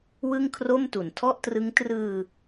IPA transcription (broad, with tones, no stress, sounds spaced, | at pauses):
w ɯ˥˩ ŋ kʰ r o˥˩ m t u˩˦ n tʰ ɔ˥˩ ʔ t r ɯ˦˥ ŋ t r ɯː˧